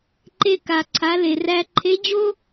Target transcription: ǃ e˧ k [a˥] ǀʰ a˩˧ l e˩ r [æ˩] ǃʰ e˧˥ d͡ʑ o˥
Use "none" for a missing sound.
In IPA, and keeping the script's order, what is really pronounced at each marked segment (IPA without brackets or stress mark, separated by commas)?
a˩, æ˧